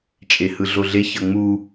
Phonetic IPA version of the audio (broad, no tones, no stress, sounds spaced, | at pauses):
t͡ʃʼ e h ɯ ɮ o ɮ e ç ʌ ŋ͡m u